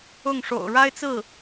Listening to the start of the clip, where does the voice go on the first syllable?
falling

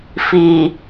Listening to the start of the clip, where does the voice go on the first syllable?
low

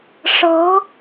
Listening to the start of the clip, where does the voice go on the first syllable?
rising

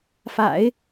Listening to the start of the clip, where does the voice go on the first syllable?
low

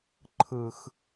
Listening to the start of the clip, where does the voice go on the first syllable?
low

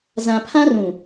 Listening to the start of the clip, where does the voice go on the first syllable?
low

